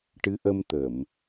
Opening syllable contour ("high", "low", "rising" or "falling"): rising